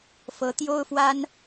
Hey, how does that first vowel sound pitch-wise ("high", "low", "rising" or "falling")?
rising